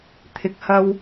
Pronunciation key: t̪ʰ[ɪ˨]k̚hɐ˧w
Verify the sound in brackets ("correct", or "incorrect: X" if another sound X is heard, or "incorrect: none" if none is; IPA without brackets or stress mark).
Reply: correct